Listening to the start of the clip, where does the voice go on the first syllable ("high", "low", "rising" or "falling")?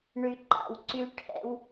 low